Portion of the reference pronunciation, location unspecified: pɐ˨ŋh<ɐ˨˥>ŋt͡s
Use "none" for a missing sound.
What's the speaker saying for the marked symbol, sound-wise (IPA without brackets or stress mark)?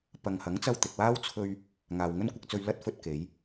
ɐ˨˥